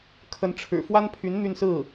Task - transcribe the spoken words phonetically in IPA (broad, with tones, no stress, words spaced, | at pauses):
kʰə˧˥nʈ͡ʂʰɻ̩˨˩ fwa˥npʰy˧˥n n̪y˥˧nsɹ̩˥˩